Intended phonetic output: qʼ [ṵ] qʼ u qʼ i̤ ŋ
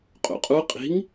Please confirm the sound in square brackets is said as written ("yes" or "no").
yes